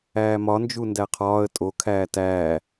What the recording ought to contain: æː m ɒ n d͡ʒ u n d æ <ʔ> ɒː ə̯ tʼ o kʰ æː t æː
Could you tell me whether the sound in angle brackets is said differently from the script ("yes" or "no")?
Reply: yes